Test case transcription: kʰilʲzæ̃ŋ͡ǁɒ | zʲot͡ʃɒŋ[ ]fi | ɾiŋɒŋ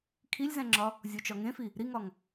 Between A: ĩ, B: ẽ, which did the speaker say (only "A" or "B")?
B